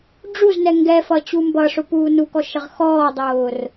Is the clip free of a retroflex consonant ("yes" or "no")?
no